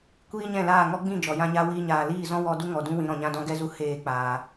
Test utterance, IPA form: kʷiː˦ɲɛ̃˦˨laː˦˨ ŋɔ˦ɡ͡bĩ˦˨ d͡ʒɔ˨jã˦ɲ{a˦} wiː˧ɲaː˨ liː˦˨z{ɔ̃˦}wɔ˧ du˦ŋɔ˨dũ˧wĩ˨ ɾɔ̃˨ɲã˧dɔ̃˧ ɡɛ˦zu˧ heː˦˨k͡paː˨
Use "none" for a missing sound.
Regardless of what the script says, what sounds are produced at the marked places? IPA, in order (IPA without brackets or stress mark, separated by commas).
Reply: a˦, ɔ̃˦